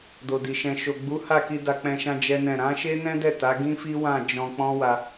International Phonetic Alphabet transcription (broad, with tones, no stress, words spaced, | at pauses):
do˨di˨ ʃɛ̃˨ʃo˨ ɡ͡bu˨˦ha˦˨ki˧ da˧k͡pɛ̃˧ʃã˧ d͡ʒɛ˦nɛ̃˦˨ ɾã˨˦ ʃe˦nɛ̃˦dɛ˦˨ ta˨˦ɡĩ˦ fi˦wã˦˨d͡ʒɔ̃˧ k͡pɔ̃˦wa˧